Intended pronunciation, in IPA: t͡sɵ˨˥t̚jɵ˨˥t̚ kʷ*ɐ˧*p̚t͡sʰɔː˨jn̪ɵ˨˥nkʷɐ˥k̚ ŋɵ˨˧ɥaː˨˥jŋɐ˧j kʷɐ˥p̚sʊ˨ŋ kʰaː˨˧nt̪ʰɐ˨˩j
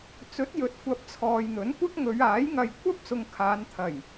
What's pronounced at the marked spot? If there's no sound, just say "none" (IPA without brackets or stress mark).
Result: ɐ˧